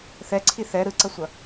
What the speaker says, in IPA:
θ ɛ ǀʰ i θ ɛ ɾ ɯ ǀ ʌ sʷ ʌ

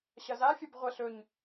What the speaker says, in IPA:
ɕ ɐ z a fʲ ɐ b ʁʷ ɐ ɬ ɵ ɲ

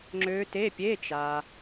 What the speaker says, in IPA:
ŋ͡ǁ ø˦˥ t e˧˥˧ pʲ e˧˥˧ t͡ʃ a˨

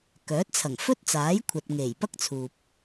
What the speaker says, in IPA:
k œː˨˥ t̚ t͡sʰ ɐ˨˩ ŋ f ɵ˥ t̚ t͡s aː˨˥ j kʷʰ ɐ˨ t̚ ŋ e˨˩ j p ɐ˥ k̚ t͡sʰ uː˨ p̚

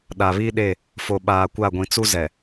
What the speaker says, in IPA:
ɗ a˨ β i˦ ɗ e˦˨ | f o˨ ɓ aː˨ kʷ a˦˨ ɡʷ ĩ˨ t͡s u˦ z ɛ˨

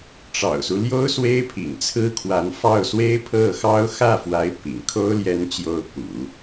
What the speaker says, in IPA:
ʈ͡ʂ ɑ̰˨˩ ʊ̯ s u˦ l j o˥ ʊ̯ s w e˥ ɪ̯ pʰ ḭ˨˩ ŋ t͡sʰ ɹ̩˥ kʰ w a˧˥ n f ɑ˥˩ ʊ̯ s w e˥ ɪ̯ pʰ ɤ˥˩ x ɑ˥ ʊ̯ x ä˥˩ f w a˧˥ ɪ̯ p ḭ˨˩ ŋ kʰ o˥ ʊ̯ l j ɛ˧˥ n t͡ɕ j o˧˥ ʊ̯ p ṵ˨˩˦

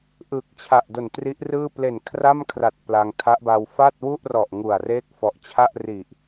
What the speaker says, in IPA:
ʔ ɯ˨˩ k̚ t͡ɕʰ a˨˩ ʔ d o˨˩ n t r i˦˥ ʔ r ɯː˥˩ p l e˨˩ n kʰ r a˥˩ m kʰ r a˨˩ t̚ p l a˧ ŋ tʰ a˦˥ ʔ b a˧ w f a˥˩ t̚ w u˥˩ ʔ r ɔ˨˩ ʔ ŋ u˨˩ a̯ r eː˥˩ k̚ f ɔ˨˩ ʔ t͡ɕʰ a˥˩ ʔ r i˨˩ ʔ

